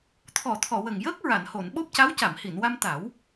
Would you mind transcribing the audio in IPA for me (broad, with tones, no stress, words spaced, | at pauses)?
t̪ʰɔ˨˩˨t̪ʰɔ˨˩˨wə˨˩ŋjəː˦˥k̚ ɹa˨˩˨nho˨˩˨nɓo˦˥p̚ ca˧˥wca˨˩˨mhi˨˩˨nwa˧m t̪a˨˩˦w